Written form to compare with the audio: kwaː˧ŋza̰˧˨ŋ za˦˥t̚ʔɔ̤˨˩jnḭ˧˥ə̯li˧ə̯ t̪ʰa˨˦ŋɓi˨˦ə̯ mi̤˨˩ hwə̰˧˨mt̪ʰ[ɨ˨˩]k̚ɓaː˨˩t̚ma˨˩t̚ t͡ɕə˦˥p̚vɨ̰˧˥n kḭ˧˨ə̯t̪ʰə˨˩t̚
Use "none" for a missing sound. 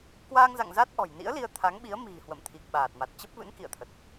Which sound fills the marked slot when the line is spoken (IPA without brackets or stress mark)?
i˨˩